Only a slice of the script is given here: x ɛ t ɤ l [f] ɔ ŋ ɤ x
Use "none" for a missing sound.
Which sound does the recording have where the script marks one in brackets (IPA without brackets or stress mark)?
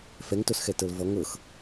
v